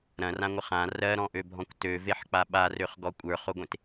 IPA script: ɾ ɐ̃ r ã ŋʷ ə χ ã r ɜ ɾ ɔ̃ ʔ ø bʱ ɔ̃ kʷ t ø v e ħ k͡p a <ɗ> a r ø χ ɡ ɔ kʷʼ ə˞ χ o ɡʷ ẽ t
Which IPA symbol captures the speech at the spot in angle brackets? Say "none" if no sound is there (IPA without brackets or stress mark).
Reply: ɓ